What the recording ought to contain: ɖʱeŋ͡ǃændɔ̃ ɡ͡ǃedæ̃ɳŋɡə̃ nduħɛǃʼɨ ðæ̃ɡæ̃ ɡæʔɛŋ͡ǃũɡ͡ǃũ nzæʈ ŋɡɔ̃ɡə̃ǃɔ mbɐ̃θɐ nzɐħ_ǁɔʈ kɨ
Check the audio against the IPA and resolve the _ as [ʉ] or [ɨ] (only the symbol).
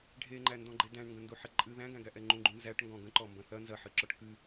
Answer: ɨ